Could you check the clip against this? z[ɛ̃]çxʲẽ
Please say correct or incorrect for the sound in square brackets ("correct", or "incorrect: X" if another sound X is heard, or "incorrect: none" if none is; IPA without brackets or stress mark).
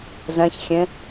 correct